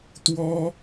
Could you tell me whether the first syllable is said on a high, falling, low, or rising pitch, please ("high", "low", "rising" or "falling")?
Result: high